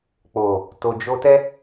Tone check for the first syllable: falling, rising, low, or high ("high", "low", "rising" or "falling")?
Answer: low